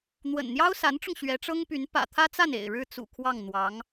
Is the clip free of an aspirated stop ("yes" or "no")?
no